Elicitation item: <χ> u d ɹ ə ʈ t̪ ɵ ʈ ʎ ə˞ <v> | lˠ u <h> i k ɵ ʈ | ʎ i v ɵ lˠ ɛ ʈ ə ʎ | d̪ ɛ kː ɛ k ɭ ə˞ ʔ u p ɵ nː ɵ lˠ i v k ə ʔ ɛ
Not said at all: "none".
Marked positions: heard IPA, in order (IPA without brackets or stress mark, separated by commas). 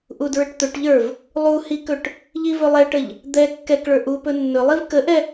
ʔ, v, h